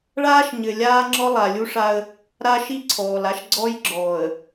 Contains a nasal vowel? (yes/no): no